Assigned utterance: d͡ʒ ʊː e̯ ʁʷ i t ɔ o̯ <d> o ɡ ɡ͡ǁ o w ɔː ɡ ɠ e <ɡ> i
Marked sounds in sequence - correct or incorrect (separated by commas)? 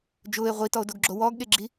correct, incorrect